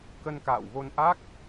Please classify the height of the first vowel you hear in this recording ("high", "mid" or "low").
mid